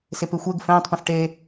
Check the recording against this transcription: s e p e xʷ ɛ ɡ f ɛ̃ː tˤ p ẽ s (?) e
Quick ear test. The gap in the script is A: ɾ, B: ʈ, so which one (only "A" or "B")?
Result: B